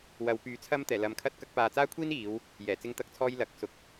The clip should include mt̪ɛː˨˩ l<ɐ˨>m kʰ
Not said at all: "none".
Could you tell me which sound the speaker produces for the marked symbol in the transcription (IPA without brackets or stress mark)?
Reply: ɐ˨